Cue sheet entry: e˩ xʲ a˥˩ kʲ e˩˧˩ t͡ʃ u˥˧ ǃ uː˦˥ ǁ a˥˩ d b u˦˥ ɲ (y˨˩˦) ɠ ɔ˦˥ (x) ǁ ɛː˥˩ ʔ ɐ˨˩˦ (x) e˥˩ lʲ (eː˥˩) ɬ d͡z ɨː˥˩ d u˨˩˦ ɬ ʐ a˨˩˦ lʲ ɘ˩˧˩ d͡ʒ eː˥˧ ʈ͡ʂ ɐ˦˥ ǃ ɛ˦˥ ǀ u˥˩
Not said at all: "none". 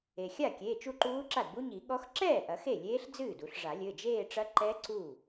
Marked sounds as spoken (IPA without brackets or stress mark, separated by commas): i˨˩˦, x, x, eː˦˥